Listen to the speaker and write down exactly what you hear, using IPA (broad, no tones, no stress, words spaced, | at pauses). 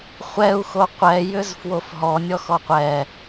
χʷɛu̯xo qʷɛjʏz fwofɦɔnʲɔx ɔqʷɛ